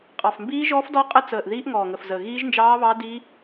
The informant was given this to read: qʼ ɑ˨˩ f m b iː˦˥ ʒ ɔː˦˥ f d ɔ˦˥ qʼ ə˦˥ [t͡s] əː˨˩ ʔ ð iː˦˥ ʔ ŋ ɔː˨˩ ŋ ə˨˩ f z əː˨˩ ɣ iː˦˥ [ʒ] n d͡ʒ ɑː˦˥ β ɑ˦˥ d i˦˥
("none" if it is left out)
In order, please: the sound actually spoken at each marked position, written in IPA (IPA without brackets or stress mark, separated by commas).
t͡s, ʒ